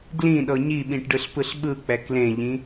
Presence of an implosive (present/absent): present